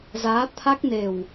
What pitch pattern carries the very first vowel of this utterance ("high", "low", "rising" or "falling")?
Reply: rising